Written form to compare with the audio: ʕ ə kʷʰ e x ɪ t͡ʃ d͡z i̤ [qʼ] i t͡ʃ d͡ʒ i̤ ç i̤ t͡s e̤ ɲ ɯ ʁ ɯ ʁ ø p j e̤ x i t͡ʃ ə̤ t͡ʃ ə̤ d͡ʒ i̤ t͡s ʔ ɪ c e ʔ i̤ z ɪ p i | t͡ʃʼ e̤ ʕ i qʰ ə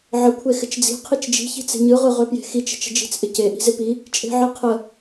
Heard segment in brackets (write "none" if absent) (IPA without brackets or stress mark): qʰ